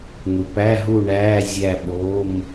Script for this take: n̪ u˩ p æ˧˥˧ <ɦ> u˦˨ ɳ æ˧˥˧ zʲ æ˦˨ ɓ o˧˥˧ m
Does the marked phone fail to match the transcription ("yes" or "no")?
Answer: no